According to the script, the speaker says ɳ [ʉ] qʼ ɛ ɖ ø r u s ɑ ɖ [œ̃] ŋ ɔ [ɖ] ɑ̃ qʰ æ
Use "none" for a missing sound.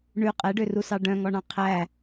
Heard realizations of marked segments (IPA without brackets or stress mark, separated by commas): ʉ, œ̃, ɳ